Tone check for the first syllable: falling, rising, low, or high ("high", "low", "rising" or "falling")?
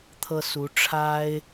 high